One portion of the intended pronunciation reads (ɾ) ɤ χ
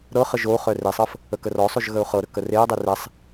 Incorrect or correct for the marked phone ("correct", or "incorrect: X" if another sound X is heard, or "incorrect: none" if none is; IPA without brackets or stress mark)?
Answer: correct